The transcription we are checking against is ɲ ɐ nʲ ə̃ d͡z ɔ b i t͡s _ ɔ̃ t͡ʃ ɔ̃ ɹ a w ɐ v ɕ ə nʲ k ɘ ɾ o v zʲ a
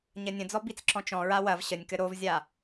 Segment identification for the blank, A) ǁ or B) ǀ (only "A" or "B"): A